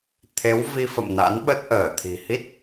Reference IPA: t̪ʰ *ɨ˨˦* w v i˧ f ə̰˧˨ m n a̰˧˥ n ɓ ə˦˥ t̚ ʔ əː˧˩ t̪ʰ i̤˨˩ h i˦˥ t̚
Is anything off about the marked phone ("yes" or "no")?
yes